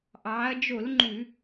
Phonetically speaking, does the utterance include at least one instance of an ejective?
no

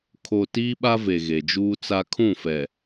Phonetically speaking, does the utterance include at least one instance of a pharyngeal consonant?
no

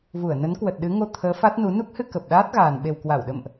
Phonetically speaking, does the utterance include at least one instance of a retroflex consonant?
no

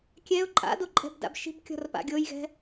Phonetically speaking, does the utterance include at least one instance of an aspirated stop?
no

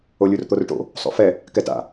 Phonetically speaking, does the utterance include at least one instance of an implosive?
no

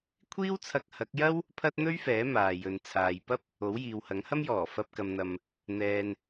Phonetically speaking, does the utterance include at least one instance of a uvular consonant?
no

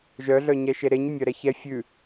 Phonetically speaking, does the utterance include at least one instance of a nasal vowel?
no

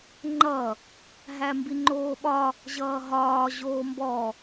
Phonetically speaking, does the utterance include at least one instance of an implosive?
yes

